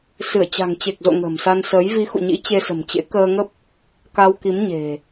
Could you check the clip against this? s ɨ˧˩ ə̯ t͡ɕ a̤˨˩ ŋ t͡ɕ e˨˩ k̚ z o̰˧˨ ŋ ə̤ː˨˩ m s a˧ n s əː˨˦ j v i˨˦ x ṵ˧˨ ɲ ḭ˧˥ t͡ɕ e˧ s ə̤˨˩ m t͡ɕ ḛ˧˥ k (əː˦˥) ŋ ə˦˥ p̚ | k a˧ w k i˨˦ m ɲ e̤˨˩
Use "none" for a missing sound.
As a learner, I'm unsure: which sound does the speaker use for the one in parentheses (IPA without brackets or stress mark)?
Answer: əː˧